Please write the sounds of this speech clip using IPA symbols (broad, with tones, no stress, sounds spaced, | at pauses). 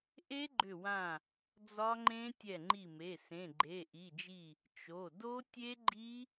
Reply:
ʔ e˦˥ ɡ͡ǃ ʏ˧˩ w ã˧˩ | d͡z ɒ˦˥ ŋ͡ǃ ẽ˦˥ tʲ ɛ˧˩ ŋ͡ǃ i˧˩ m e˩˧˩ s ẽ˩˧˩ ɡ͡ǃ e˩˧˩ ʔ i˩˧˩ d͡ʒ i˧˩ | t͡ʃ o˩˧˩ d o˦˥ tʲ e˦˥ ɡ͡ǃ i˦˥